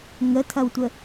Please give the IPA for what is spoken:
ŋətʰɐwtʷə

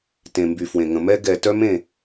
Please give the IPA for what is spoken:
tẽ˨mby˨fwẽ˨ŋə̃˨ mɛ˦ ɡɛ˨ tœ˦mẽ˦˨

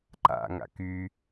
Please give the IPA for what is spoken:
ǃa̰ŋa̰ ky

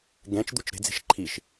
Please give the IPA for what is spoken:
ɡɛ̃t͡ʃd̪ut͡ʃ ɾe̤d͡ze̤ʃ ǃʰiʃ

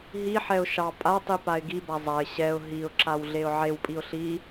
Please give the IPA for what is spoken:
ɦiħɛʊ̯ ʃɑ pʼatˤi paɪ̯ɡiba zˤaɪ̯ ɕɛʊ̯ ɦiʊ̯ǁaw ɮeʊ̯ʕewpʼiʊ̯ ɬi

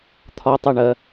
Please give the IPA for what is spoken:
t̪ʰɒtˤæɳɜ

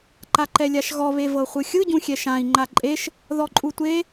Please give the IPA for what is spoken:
ǃaǃɛlʲaʃɣɔ βevɤχʷɯxʲɯ ɟũxʲɛʃãi̯ ŋ͡ǃaǃʼeʃ | ðɔǃʼutʷe

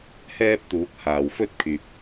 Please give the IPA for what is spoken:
hɛː˧p̚ t̪uː˨˥k̚haː˨wfɵ˥t̚kʰyː˨p̚

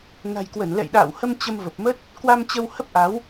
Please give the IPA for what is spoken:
na̤˨˩jkwə˧˩n lɛ̰˧˨jɗa̰ː˧˨whə˧m t͡ɕə˧mvə˨˩p̚mə˦˥t̚ | kwa˧m t͡ɕə˧whə˦˥p̚ʔa˨˦w

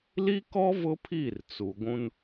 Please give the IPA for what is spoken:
li˦kɔ˦ vʊ˦pʰi˦˨r t͡su˨ɡʷũ˦n

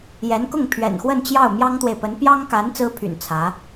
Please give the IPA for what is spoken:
jɛ˧˥nkʊ˥˩ŋ pʰɥɛ̰˨˩nxwə˥˧nt͡ɕjɑ˥˩ʊ̯ mjɑ˥ŋt̪we˨ɪ̯pə˧˥n pjɑ˥ŋka˧˥n t͡sɹ̩˥pʰy̰˨˩n t͡sʰä˧˥

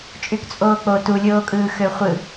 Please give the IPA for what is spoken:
t͡ʃʼykt͡sʼoːk͡po tulʲoːkʼɯː xøχʷɯ

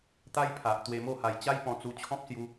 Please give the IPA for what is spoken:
t̪a˦jpʰa˨ʔ t̪we˧mo˥˧ha˧j t͡ɕa˦jpɔ̃˧t͡su˧t͡ɕʰɔ̃˦p̚ sju˦

